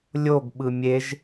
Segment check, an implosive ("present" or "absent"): present